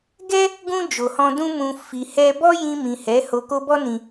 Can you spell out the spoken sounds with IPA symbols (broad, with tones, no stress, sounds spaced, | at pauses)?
ɡ ɛ˦ | ɡ ũ˧ d͡ʒ o˨ h ɔ̃˧ d ũ˧ m ũ˨ f i˨ h ɛ˧ b ɔ˦ j ĩ˧ m ĩ˨ h ɛ˨˦ h o˧ k o˦ b ɔ˦ n ĩ˧